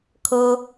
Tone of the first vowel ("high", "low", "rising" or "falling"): high